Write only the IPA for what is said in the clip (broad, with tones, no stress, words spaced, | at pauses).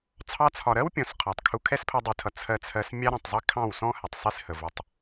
t͡sʰɑ˧t͡sʰɒ˨ɾɜ˦wpʲɔ̃˨s qʰɒ˨tˤkʰu˧ kʰɛ˦spʰɜ˧dˤi˨tʰʌ˨ t͡sʰɜ˧t͡sʰɜ˧s mʲɑ˦ɾɔ̃˨tˤzˤi˦ kʰɑ̃˦˨wsɔ̃˦ hɛ˨tˤsˤi˧shə˨vʊ˨˦tˤ